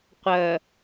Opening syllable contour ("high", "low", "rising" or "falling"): low